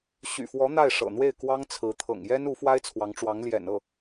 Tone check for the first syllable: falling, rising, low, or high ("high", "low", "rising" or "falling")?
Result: low